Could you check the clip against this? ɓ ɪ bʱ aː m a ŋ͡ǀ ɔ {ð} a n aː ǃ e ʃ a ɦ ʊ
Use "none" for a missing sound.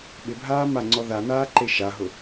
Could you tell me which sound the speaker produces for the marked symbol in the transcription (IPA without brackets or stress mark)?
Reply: ð